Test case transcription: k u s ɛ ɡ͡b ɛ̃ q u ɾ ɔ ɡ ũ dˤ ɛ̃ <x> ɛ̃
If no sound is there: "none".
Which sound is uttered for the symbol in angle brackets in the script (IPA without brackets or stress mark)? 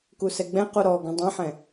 ħ